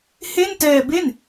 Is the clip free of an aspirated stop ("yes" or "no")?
yes